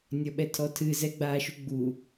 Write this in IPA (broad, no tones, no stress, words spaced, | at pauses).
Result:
nʲɔɓɛtʰɔtʰɨ zɛɡ͡baːʃuɡ͡bu